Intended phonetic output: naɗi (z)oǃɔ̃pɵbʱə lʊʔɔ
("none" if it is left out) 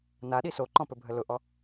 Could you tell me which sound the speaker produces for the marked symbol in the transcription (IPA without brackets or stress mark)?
s